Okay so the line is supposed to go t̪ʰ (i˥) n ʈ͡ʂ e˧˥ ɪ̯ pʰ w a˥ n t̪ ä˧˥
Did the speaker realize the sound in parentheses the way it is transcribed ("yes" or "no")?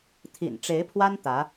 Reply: no